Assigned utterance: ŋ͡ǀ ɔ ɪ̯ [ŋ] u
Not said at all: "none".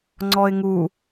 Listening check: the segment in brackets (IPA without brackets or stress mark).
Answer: ŋ